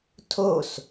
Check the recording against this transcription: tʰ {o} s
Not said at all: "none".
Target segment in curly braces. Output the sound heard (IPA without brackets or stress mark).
o